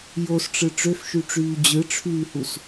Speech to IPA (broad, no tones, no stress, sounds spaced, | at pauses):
j o s ʈ͡ʂ ɯ ʈ͡ʂ ø f ʃ y ʈ͡ʂ yː d͡ʑ ɯ ʈ͡ʂʰ yː h u s